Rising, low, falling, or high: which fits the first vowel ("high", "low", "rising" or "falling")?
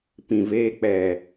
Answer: low